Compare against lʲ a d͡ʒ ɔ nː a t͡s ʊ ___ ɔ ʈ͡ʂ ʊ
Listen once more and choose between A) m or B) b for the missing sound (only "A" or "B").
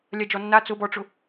B